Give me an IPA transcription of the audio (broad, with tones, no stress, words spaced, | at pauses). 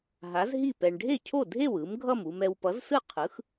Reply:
ɦa˩˥zɦi˥˩pɛ˨ɳ ɖʱe˥˩cʰo˥˩dʱe˥˩w ɯ˩˥mɡʱʌ˥˩m u˨mɛ˨w pʌ˩˥zsɯ˥˩qʰɯ˩˥x